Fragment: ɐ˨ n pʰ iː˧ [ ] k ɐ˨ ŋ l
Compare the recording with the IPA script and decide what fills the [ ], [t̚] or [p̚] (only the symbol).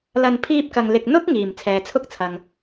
p̚